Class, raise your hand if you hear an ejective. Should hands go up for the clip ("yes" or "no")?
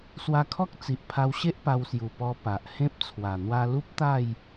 no